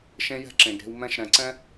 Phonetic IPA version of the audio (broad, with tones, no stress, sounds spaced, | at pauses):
ʃ ẽ˦ j ɛ̤˦ ǁ ẽ˨ ɡ ɾ e̤˧ w m ɛ̃˧ ʃ ɾ ɛ̃˨ ǀ ɛ̃˦